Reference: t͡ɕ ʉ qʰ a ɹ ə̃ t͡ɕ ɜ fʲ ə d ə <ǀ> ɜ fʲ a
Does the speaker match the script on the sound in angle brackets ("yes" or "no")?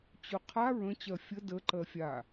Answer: no